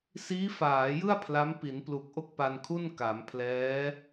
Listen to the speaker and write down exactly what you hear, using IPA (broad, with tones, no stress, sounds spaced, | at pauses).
s iː˦˥ f aː˩˦ j ɯ˥˩ a̯ pʰ l a˦˥ m p i˩˦ n p l u˨˩ k̚ ʔ o˥˩ k̚ p a˧ n kʰ u˥˩ n k a˩˦ m pʰ l ɛː˦˥